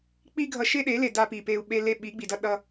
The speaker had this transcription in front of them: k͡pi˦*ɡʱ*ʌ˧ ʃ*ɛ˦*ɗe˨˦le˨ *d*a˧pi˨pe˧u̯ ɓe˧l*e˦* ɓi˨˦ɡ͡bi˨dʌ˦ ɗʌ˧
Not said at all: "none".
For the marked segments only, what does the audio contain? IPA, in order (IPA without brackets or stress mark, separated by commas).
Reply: ɡʱ, e˦, d, e˧